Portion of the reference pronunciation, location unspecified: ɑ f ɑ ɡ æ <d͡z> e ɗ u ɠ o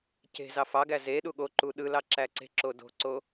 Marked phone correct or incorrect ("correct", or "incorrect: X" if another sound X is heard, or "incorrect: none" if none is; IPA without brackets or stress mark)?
incorrect: z